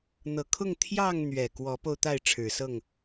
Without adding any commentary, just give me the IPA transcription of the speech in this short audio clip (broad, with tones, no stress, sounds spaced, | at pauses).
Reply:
n̪ ɤ˨˩ kʰ ʊ˥˨ ŋ t̪ʰ j ɑ˥˨ ŋ n̪ ɥ ɛ˨˩ k w ɔ˨˦ p o˧ ʊ̯ t̪ a˥˨ ɪ̯ ʈ͡ʂʰ ɻ̩˨˩ s ɤ˥˨ ŋ